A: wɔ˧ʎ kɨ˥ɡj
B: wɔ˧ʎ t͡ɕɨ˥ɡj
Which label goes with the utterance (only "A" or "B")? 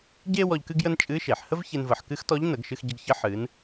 A